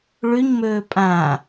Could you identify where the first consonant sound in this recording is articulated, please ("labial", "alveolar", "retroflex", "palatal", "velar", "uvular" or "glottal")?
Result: retroflex